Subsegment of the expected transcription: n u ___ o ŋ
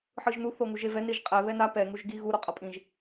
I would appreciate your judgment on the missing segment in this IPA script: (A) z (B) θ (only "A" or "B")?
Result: B